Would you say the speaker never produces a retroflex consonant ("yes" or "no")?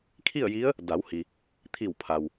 yes